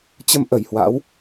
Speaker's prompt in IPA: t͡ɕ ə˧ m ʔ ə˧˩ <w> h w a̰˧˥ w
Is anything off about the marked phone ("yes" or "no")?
yes